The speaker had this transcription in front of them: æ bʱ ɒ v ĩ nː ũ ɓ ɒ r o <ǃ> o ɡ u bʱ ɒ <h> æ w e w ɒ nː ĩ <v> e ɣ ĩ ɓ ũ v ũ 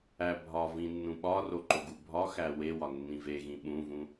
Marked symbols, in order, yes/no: yes, no, yes

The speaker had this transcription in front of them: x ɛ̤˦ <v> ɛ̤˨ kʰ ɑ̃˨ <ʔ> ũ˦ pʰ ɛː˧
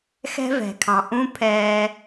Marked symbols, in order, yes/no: yes, yes

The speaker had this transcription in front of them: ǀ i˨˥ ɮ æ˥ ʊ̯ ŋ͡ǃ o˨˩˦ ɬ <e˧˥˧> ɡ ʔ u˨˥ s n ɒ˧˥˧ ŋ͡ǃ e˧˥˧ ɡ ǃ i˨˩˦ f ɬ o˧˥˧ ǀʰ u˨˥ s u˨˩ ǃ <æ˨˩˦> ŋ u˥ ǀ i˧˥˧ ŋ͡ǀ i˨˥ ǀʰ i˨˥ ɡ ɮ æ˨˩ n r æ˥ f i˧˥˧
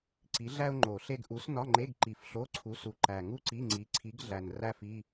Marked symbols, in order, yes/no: no, no

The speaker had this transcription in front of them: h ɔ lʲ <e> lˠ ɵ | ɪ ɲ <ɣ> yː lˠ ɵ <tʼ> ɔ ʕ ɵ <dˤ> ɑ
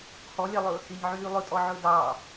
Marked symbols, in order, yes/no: no, no, yes, no

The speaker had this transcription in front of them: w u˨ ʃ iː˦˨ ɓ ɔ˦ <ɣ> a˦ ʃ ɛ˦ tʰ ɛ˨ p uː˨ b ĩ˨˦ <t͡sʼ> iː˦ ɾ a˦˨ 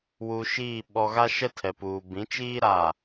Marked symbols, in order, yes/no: yes, no

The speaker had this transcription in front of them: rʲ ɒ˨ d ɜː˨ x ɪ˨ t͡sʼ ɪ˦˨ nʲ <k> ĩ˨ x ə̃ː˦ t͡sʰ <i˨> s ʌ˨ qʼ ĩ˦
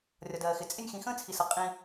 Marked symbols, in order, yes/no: no, yes

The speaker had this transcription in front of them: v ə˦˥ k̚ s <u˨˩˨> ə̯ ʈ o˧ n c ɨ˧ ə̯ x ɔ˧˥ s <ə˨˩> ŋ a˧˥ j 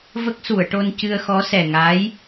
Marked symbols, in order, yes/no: yes, no

